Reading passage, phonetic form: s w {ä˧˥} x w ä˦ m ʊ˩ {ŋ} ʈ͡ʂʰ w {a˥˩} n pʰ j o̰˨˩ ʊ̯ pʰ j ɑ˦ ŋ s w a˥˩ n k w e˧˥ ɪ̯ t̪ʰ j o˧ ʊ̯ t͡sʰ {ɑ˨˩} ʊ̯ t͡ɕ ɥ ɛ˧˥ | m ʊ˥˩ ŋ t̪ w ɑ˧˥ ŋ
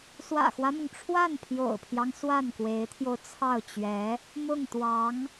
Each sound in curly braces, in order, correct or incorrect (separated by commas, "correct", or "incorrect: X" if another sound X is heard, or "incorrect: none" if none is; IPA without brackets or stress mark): incorrect: ä̰˨˩, correct, correct, incorrect: ɑ˥˩